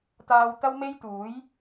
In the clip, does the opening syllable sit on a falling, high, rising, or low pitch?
low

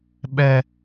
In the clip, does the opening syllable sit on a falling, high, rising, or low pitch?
high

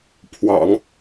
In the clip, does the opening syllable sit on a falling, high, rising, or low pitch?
low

